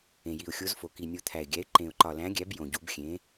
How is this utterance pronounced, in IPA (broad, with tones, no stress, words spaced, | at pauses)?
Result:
ẽ˨ji˨ʊ̯xʲo˨˦zfo˨ ki˨nʲo˨ t̪ʰæ˨ɪ̯ɡʲæ˨˦ɪ̯ ǃẽ˨ʊ̯ǃɒ˨læ̃˨˦ɡʲæ˨˦b jõ˨ɟu˨˦b xʲẽ˨˦